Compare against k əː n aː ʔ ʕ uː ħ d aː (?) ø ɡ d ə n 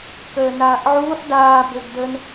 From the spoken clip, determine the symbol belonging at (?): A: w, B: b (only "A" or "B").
B